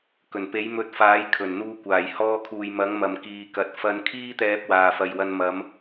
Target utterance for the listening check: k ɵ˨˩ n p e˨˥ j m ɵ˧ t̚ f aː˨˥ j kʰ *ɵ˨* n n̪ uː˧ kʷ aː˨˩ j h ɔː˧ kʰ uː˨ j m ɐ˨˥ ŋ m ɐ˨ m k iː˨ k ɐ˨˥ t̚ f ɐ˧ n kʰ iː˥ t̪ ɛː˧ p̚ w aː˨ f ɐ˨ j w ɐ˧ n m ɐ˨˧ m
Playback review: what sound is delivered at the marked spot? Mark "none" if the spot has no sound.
ɵ˨˩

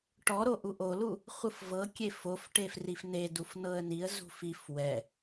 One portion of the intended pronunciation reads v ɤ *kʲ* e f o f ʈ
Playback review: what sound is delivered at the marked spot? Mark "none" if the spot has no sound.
kʲ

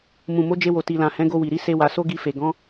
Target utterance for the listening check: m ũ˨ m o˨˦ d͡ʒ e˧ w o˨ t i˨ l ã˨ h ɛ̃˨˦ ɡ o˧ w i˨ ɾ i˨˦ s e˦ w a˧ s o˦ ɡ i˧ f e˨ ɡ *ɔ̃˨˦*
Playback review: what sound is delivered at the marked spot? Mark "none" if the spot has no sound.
ɔ̃˨˦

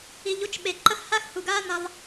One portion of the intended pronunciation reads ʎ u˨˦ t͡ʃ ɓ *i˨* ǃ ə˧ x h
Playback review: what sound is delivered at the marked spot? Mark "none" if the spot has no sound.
e˨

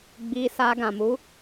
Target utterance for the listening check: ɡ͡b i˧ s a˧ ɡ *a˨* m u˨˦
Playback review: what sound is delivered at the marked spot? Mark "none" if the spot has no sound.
ã˨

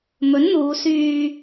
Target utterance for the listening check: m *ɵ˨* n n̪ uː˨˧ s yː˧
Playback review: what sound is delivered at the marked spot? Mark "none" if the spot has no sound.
ɵ˨˥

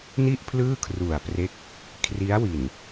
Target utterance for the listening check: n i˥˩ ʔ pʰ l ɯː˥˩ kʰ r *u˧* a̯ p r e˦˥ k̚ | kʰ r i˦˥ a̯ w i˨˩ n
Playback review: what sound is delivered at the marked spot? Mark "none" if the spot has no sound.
u˨˩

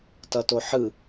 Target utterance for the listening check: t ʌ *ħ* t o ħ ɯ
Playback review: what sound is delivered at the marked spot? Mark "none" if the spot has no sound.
none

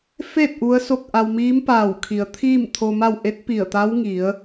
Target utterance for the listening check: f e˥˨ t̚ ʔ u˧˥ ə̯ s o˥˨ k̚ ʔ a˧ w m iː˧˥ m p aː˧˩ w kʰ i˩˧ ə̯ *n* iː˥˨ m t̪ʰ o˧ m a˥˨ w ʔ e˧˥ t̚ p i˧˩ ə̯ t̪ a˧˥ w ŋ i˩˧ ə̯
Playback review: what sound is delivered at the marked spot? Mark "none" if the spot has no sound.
t̪ʰ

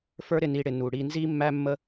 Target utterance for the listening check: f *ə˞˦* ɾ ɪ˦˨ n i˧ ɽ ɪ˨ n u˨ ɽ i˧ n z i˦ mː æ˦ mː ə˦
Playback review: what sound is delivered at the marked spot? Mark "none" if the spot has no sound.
ə˞˦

